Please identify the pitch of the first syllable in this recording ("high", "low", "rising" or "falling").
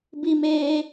high